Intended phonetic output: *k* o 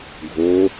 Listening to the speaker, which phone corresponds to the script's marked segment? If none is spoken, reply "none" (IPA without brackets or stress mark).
ɡʱ